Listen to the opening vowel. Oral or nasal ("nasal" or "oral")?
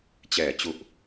oral